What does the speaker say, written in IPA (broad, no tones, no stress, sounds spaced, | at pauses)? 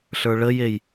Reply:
ɬ ə˞ ɭ ə j e j